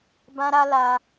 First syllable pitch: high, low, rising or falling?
high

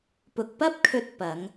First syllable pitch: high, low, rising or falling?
low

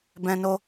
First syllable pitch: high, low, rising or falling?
high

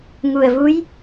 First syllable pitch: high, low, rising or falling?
low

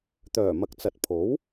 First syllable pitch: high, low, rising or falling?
low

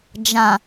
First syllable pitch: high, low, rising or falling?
low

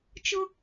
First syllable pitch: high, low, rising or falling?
high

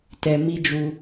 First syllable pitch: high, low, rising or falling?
low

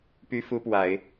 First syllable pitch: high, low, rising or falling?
high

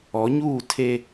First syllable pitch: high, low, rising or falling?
rising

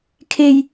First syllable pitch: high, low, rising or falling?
high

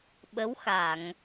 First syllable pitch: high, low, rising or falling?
rising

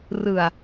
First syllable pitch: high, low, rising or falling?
low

